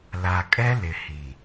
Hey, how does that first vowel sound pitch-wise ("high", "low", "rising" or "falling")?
low